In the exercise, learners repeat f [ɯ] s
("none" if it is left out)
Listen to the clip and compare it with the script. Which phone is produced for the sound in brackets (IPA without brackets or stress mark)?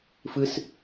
ɯ